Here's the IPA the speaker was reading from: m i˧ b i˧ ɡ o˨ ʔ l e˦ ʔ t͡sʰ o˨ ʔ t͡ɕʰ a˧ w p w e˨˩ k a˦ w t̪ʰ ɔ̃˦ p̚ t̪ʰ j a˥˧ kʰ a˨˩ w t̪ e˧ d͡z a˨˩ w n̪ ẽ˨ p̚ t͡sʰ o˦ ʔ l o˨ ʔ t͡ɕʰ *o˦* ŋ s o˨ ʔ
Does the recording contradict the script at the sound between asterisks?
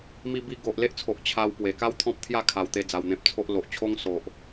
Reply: no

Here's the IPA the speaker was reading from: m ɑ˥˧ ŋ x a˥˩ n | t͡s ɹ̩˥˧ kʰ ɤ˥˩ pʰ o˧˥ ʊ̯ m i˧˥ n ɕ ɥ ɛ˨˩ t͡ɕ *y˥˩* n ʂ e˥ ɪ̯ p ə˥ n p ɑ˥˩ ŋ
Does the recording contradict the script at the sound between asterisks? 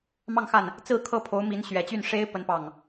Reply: no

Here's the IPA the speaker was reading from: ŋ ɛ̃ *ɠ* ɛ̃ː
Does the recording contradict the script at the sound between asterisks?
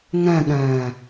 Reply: no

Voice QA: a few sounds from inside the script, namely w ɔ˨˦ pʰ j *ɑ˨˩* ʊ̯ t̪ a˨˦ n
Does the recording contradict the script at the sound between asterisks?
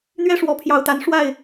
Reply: no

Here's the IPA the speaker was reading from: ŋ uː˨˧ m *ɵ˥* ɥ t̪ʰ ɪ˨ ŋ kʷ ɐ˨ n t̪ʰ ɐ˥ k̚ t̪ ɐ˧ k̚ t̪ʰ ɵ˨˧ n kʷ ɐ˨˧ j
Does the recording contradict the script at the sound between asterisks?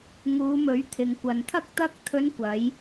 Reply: yes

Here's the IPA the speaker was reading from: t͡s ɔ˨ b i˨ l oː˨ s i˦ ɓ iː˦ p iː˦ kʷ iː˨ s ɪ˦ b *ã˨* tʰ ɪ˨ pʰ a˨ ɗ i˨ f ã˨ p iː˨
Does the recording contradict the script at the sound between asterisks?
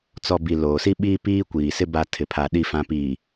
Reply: yes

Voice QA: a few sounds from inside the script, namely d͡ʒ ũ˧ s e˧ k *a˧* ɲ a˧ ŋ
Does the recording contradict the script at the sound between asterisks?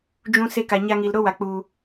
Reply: yes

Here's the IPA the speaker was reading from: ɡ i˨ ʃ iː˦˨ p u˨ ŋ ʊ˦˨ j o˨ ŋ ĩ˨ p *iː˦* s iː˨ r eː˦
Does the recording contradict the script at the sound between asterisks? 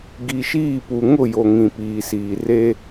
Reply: yes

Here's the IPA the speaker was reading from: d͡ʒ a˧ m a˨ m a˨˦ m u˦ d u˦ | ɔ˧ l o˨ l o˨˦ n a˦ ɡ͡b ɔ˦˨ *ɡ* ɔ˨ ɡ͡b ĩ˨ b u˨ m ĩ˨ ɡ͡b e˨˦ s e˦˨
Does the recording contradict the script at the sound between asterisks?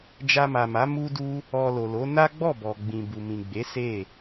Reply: yes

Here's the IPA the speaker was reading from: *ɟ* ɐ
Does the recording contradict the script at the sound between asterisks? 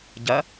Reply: no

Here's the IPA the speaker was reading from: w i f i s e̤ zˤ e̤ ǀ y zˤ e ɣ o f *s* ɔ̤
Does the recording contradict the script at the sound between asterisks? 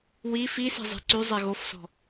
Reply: no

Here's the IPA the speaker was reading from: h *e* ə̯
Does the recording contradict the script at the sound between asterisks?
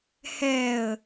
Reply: yes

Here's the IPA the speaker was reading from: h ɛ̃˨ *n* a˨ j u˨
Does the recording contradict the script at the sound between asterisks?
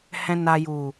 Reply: no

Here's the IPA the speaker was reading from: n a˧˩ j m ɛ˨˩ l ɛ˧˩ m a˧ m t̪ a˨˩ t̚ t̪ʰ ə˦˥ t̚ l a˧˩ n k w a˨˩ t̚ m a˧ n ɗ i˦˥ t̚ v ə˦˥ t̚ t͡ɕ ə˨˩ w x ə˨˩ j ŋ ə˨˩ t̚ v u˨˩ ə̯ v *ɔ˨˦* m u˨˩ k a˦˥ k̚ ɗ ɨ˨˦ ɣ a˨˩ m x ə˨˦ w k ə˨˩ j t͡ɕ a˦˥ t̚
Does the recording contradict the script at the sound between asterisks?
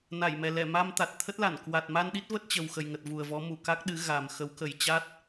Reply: no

